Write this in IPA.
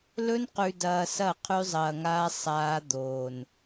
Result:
lɵ˦nqʉ˨dɐː˨ sɐ˦˨qʰʉ˦zˤɐː˨ŋaː˦ sˤaː˦d̪oː˨n

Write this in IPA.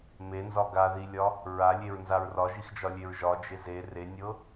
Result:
menzɒ ɡaðilʲɒ | ɹalʲeɹnzaɹ rɒʒixd͡ʒɒlʲeɹ ʒɒd͡ʒe ze renʲɤ

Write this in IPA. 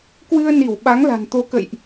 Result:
kwɨ˧ə̯ni˧˩w ɓa˨˦ŋla̤˨˩nt̪o˨˦kə̰˧˨jʔ

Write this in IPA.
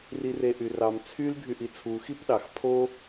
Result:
rireʔyrɑm t͡sʰyl ɡʱyʔit͡sʰu xipɗɑx pʰo

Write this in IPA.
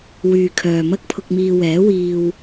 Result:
wyː˨ kʰœː˨mɐ˥k̚pʰʊ˧k̚miː˧ wɛː˨˥wiː˧w

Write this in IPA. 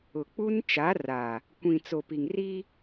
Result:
ʊ˨k͡pu˦n t͡ʃa˨˦ra˨ | kʷĩ˨t͡so˨pi˨ŋ ri˦

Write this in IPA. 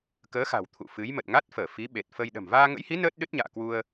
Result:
kəː˨˦xa̤˨˩w t̪ʰṵ˧˨ fɨ˨˦j mə˨˩t̚ŋa˦˥t̚fəː˧˩ fi˨˦ɓe˨˩t̚fə˧j ɗə̤˨˩mvaː˧ŋə̰˧˥jhi˨˦ nəː˦˥t̚ɗɨ˦˥t̚ɲa̰ː˧˨ kwu˧ə̯

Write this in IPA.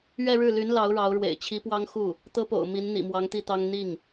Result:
ɥɛ˥˧ɻɻ̩˥˩ly˧˥n lɑ˧˥ʊ̯ɻɑ˧˥ʊ̯ɻwḛ˨˩ɪ̯ t͡ɕʰi˧˥pwɑ˥ŋxu˥˩ | t̪ɤ˥po̰˨˩ʊ̯ mi˧˥n n̪ḭ˨˩mwɑ˧˥ŋt̪i˥˩t̪ɑ˥ŋ n̪i˥˩ŋ

